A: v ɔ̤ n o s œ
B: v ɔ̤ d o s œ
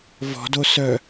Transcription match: B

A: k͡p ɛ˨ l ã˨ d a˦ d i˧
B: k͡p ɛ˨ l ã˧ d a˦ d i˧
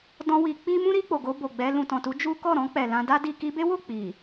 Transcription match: B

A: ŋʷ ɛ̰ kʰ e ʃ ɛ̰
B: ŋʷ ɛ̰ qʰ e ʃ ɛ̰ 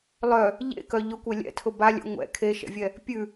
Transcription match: A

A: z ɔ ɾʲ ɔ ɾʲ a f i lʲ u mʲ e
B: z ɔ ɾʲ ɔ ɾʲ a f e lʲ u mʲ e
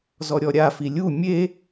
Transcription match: A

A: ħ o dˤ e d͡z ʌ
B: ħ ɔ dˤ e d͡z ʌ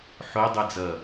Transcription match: A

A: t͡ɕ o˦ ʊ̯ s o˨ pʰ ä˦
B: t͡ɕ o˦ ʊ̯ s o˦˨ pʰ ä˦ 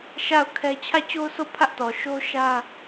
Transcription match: B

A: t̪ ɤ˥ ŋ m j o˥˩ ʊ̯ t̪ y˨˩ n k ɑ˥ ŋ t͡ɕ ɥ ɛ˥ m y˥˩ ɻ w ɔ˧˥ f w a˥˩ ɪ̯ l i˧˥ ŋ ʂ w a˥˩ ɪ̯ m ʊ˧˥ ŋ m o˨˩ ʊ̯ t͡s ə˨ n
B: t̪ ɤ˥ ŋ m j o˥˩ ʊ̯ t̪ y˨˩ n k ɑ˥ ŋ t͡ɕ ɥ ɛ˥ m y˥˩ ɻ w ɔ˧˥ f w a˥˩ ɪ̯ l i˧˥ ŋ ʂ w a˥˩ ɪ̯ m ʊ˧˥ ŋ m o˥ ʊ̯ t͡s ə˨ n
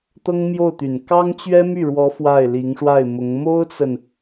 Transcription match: B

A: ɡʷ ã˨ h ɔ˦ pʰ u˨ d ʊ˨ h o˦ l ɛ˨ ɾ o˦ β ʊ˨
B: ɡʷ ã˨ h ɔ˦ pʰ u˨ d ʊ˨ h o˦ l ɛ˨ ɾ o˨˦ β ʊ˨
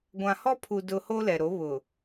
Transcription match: B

